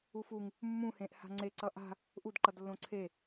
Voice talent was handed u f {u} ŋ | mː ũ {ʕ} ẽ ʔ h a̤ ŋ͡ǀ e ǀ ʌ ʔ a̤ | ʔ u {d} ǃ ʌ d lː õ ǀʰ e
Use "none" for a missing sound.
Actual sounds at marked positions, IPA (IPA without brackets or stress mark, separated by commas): u, h, d